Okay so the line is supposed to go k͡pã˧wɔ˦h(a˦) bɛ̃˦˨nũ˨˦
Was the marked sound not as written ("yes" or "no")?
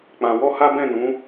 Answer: no